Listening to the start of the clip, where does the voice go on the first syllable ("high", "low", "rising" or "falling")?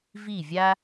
falling